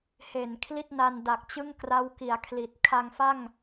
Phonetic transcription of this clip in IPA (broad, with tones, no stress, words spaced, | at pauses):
he˨˩n kʰli˥˩t̚na˧nda˨˩k̚ t͡ɕɯ˥˩ŋkra˦˥wki˩˦a̯kʰli˨˩t̚ kʰa˧ŋfa˥˩ŋ